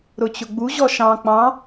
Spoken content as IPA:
ɾ ʊ t͡ɕ ʊ ɡ͡b u ʑ ɔ ʃ ɑ̃ k͡p ɑ̃

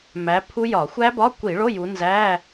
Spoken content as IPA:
m æ˨˦ pʰ u˦˥ j ɒ˧˩˧ xʷ æ˦˥ b ɒ˧˥˧ kʷ i˧˩˧ ɭ o˧˥˧ j u˨˦ n z æ˧˥˧

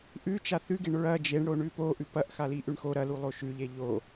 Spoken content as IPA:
ʔ ʉ t͡ʃ a θ ʉ ɡ e ɳ ɹ ɐ d͡ʒ e ɳ ɽ o ɳ ʉ p o ʔ ʉ p ɐ ʔ x a l i ʔ ʉ ɳ x o ɾ ɐ l u lˠ o ʃ ʉ ʎ e ʎ o

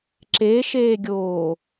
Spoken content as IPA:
ǁ e ʃ eː ɡʲ oː

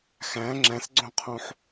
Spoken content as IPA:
x æ̃ ŋ͡ǁ æ̃ s ɡ͡ǀ õ qʰ õ ħ

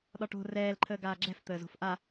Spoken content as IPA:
ɗ ɒ ʈ o̤ r ɛː l ǃʰ əː ɡ aː ɡ͡ǁ ɛ̤ f t̪ əː z o̤ f ʔ a

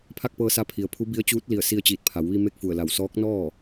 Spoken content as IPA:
pʰ a˥˨ k̚ p ɤː˧ s a˧˥ pʰ i˩ ə̯ pʰ u˧˥ b i˧˥ ə̯ t͡ɕ uː˧˥ t̚ l i˧˩ ə̯ s i˧ ə̯ t͡ɕ iː˧˩ t̚ pʰ a˩˧ w ʋ i˧ m e˥˨ k̚ f u˧˩ ə̯ l a˧˩ w s ɔː˧˥ k̚ n ɔː˥˨

